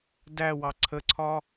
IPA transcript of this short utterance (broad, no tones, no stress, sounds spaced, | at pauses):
d æ w ɑ ǀʰ ə ǀʰ ɒ